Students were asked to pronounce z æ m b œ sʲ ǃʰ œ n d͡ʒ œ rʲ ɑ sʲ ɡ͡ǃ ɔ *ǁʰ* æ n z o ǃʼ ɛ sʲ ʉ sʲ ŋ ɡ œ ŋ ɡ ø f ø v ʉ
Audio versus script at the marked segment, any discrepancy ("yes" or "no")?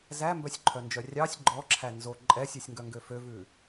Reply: no